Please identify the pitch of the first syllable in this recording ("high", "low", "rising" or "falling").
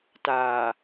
low